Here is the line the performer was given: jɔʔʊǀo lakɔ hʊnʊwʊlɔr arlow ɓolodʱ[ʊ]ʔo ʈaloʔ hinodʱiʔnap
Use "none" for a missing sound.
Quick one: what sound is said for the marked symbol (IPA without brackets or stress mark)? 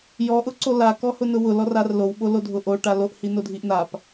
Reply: ʊ